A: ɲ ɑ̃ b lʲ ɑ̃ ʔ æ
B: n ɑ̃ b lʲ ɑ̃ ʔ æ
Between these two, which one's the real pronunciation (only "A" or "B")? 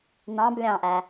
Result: B